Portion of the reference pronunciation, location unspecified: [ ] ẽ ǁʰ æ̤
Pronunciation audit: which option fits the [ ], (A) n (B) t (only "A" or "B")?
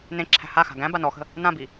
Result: A